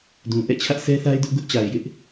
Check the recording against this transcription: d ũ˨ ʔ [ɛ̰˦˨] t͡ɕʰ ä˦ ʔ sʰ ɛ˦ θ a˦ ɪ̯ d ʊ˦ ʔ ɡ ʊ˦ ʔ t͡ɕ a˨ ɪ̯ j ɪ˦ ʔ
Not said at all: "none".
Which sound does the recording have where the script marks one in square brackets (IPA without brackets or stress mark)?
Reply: ɛ̰˦˨